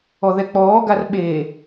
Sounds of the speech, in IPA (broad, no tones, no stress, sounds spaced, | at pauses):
ɔ ð ɛ k͡p ɔː ɡ a r ɓ e